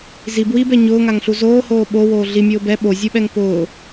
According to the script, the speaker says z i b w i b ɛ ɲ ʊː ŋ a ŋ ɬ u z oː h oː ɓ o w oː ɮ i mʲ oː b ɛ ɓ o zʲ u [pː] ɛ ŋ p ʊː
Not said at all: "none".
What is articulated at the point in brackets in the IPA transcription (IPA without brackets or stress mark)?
ɓ